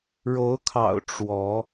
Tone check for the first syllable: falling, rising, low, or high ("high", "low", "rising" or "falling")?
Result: rising